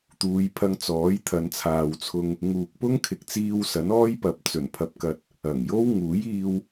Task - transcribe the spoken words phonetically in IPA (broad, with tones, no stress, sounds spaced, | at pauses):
t̪ uː˨˧ j pʰ ɐ˧ ŋ t͡s ɔː˨˥ j t̪ʰ ɐ˨˧ n t͡sʰ aː˨ w t͡sʰ ʊ˧ ŋ | ŋ uː˨ k̚ p ʊ˥ ŋ kʰ ɪ˨ k̚ t͡s iː˧ w s ɐ˨˥ n ɔː˥ j p ɐ˨ p̚ t͡s ɵ˨˩ n pʰ ɐ˨ p̚ k ɐ˨ t̚ | ɐ˨˩ ŋ j o˥ w ŋ uː˨˥ j iː˧ w